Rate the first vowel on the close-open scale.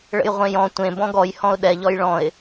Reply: mid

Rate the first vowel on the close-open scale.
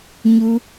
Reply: close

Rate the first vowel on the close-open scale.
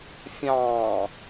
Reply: open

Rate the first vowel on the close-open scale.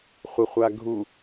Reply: open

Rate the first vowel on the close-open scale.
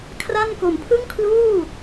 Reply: open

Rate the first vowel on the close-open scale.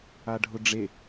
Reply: open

